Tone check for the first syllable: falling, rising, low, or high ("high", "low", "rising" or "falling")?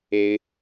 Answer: high